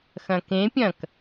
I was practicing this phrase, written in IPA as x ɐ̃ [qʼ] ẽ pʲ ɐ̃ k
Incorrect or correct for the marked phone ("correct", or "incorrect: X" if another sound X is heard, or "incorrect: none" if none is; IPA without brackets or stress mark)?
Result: incorrect: k